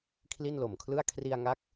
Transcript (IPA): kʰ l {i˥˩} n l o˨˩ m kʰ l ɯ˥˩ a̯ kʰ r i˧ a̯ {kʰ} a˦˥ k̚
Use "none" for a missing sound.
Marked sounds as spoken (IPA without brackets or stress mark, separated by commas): i˥˩, ŋ